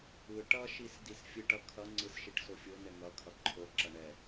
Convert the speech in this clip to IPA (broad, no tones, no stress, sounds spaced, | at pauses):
ɯ ʈ ʌ ʃ i s d i s fʲ ɯ ʈ ʌ kʰ ʌ ŋ͡ǀ ɯ s ʃ i ʈ s o fʲ o n ɛ ŋ ʌ kʰ ʌ ǃʰ o ǁ ʌ ɳ ɛ